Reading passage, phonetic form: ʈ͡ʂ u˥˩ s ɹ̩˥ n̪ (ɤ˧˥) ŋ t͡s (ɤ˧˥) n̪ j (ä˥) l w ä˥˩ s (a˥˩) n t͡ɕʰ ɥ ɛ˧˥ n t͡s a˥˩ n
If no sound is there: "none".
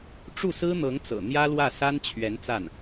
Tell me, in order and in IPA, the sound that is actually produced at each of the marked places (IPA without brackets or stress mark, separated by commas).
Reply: ɤ˧˥, ɤ̰˨˩, ä˥, a˥